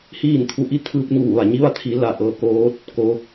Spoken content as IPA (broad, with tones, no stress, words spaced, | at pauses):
hiː˥˨nt̪ʰu˧˥ʔi˧˥ t̪ʰɯː˧p̚ɲuː˧˩ʋa˧˩ɲi˧˥ ʋa˧t̪ʰiː˩˧ la˧˩ʔɤː˧koː˧˥t̚ | ko˧